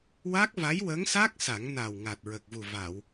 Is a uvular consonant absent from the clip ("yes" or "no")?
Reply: yes